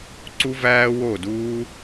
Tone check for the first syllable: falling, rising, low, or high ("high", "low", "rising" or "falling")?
high